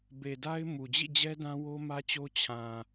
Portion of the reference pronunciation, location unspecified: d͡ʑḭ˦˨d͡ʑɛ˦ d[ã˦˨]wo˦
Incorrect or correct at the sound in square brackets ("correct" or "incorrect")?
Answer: incorrect